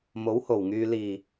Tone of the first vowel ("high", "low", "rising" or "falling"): rising